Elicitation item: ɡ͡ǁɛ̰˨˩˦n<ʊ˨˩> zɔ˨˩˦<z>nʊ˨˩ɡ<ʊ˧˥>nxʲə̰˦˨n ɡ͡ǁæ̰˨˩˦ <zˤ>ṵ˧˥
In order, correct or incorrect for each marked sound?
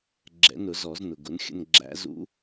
incorrect, correct, incorrect, incorrect

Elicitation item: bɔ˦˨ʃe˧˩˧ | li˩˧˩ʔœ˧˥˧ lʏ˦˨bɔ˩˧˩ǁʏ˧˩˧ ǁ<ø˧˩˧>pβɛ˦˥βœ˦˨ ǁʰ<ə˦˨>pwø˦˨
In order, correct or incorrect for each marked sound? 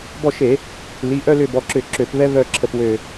correct, correct

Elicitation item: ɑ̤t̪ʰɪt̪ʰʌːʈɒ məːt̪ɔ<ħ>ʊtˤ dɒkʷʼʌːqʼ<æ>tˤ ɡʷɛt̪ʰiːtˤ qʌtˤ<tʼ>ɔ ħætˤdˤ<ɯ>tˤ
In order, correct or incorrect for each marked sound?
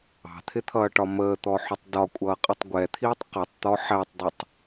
correct, incorrect, incorrect, incorrect

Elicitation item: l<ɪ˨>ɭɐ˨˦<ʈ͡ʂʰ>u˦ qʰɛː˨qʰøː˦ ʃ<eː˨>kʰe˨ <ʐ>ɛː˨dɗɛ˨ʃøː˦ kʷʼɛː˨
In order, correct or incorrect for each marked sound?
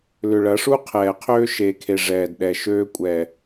incorrect, incorrect, correct, correct

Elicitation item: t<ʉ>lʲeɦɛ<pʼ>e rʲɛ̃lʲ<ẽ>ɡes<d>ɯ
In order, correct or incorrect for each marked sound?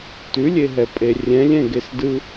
correct, correct, incorrect, correct

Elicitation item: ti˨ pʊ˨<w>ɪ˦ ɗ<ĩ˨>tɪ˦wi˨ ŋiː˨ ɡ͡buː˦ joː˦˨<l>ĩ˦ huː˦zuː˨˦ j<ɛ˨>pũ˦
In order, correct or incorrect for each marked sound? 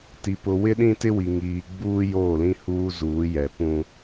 correct, incorrect, correct, correct

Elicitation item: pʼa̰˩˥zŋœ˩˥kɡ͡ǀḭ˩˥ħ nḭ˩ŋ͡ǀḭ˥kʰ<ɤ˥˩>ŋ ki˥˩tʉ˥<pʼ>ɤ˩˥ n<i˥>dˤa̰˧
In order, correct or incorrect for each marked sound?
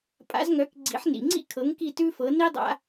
incorrect, incorrect, correct

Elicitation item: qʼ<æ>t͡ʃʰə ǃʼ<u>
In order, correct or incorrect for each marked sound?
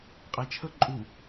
correct, correct

